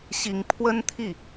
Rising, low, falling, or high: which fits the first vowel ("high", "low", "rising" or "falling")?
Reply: rising